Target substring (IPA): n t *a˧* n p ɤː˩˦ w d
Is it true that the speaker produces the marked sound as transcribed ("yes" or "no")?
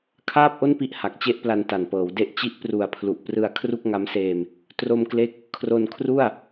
no